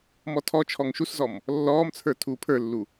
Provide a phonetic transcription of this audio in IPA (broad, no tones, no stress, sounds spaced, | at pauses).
m ɔ tʰ ɔ t͡ʃʰ ɔ ŋ ʃ u s z ɔ m | lː ɔː m t͡sʰ ə˞ tʰ uː pʰ ə˞ lː u